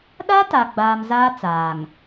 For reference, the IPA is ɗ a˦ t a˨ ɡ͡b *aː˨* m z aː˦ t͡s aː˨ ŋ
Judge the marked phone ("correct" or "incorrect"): correct